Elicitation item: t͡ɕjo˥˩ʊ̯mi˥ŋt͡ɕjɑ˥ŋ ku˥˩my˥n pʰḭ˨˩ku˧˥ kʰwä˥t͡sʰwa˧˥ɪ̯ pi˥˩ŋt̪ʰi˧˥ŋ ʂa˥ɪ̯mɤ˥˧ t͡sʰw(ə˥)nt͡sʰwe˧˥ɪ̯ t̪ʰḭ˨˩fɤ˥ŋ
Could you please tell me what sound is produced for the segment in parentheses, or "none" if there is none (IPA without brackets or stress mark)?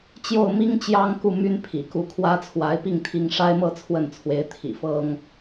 ə˥˩